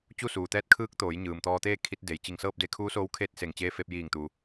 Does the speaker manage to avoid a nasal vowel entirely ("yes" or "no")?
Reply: yes